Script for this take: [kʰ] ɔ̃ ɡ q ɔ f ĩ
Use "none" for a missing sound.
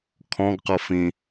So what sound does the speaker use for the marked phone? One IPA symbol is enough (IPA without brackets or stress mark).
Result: kʰ